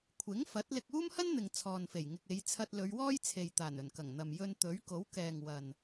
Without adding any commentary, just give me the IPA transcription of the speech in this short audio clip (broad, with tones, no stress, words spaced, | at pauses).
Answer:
kʷʰɪ˨˥ŋfɐ˨˥t̚ lɪ˧k̚uː˥mhɐ˥nn̪ɪ˨ŋ t͡sʰɔː˨nfe˨˩jŋɪ˨k̚ e˨˧jt͡sʰɐ˧t̚ lɵ˨˧ɥwɔː˥jt͡sʰe˨jt̪aː˨˩n ɵ˨˩nkɐ˨˩ŋn̪ɐ˨m jɵ˧nt̪ɵ˨˥ɥko˨˥w kɛː˨ŋwɐ˨n